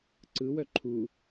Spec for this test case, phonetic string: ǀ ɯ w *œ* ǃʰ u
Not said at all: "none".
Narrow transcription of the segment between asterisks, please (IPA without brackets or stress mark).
œ